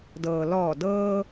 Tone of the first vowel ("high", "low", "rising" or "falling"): low